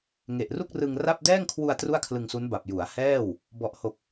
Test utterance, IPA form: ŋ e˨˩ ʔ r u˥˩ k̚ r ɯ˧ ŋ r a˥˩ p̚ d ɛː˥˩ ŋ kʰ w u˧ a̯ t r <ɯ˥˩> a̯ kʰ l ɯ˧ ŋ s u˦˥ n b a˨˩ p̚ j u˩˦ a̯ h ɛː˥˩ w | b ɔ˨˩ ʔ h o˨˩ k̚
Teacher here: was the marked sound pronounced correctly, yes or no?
no